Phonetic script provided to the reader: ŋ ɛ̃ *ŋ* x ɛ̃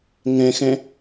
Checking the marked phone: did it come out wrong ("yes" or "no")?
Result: yes